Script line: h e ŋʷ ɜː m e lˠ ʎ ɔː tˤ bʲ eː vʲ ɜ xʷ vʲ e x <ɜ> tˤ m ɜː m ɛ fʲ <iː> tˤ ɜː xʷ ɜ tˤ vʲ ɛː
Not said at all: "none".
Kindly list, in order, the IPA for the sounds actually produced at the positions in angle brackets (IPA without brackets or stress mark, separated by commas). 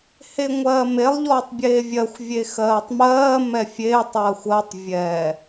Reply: ɜː, eː